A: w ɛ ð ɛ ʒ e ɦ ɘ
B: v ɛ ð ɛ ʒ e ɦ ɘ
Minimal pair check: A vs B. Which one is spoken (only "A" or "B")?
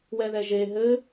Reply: A